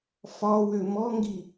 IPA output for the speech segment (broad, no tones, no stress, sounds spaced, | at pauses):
f ɒ w ø m ɔ ŋ ɡ i